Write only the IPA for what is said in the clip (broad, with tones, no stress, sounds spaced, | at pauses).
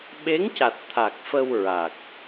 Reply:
ɓ e˧˥ ŋ c a˨˩ t̚ t̪ʰ a˨˩ k̚ f ə˧ w ɹ a˨˩ k̚